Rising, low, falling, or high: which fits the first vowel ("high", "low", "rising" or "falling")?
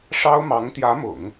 high